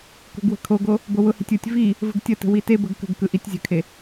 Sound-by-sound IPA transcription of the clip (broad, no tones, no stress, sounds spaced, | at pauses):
k o̤ ɡ w ə̤ kʰ o ɡ o | b o w ʊ h i̤ tʲ ɯ tʲ v i | v ə̤ ɡ tʲ ə t ə̤ w i t e b ə ɡ k ə̤ ɡ k ɯ ʔ i tʲ zʲ ə̤ kʰ e